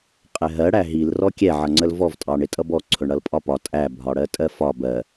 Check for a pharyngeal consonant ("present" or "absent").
present